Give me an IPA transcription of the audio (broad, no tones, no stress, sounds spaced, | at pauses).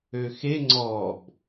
ø x e ŋ͡ǀ ɔ b